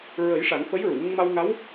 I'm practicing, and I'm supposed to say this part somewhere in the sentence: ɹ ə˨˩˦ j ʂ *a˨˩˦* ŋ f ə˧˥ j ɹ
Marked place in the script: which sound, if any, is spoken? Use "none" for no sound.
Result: a˨˩˦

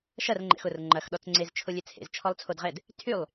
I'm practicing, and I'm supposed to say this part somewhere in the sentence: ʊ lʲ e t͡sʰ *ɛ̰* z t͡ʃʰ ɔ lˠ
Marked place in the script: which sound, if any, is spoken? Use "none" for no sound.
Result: ḛ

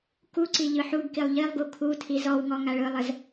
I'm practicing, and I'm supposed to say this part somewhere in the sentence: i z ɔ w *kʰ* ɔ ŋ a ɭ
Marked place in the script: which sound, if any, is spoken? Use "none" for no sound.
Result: ŋ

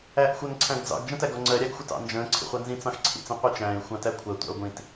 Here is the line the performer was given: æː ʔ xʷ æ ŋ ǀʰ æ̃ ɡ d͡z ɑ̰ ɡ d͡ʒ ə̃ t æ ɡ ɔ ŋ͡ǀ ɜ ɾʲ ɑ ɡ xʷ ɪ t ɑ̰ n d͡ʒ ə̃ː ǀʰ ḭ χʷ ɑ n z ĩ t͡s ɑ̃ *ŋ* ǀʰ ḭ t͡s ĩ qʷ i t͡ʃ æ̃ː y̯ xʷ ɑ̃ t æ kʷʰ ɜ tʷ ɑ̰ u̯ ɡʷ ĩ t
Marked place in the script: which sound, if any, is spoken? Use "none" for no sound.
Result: x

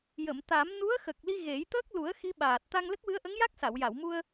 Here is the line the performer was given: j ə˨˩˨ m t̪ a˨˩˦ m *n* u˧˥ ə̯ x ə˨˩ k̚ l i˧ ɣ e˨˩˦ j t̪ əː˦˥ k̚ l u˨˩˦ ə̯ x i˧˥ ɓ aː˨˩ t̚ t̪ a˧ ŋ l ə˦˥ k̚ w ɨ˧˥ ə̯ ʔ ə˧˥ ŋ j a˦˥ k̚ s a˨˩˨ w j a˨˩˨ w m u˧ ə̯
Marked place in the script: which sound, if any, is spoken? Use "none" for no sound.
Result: n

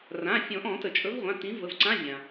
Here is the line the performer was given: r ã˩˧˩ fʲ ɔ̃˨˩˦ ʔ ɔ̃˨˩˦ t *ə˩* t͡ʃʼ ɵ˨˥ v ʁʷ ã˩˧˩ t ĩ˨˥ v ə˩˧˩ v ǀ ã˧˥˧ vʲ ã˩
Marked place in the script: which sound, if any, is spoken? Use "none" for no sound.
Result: ə˩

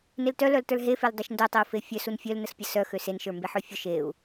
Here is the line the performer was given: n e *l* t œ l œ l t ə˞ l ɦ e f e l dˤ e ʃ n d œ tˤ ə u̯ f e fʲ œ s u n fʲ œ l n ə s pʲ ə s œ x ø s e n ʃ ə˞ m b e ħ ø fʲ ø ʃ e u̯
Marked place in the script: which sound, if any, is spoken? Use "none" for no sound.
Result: l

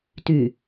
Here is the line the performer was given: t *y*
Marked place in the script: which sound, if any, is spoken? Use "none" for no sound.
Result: y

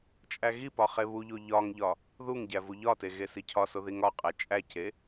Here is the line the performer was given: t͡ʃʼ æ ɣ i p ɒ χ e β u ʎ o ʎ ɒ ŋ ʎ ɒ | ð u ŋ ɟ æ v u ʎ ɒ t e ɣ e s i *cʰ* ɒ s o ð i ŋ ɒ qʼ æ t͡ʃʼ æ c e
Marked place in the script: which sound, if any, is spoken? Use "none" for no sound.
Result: cʰ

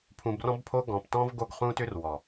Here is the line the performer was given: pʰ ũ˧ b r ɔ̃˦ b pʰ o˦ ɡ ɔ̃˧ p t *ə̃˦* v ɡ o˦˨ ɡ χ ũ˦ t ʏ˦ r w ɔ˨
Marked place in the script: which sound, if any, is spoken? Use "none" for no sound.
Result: ɔ̃˦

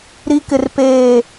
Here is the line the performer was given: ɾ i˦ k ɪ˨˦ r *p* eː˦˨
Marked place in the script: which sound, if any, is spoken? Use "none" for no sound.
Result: p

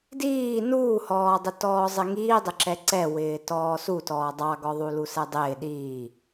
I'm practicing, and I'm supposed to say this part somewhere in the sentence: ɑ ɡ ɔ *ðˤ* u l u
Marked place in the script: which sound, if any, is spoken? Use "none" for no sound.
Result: ðˤ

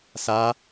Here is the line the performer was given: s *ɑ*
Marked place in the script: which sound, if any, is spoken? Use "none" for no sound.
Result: a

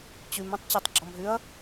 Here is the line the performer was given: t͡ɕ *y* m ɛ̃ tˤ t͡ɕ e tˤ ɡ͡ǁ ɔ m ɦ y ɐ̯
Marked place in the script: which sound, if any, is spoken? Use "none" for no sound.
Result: y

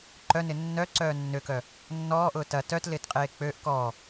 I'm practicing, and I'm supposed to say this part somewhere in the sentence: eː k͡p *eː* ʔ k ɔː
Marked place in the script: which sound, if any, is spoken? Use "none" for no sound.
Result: øː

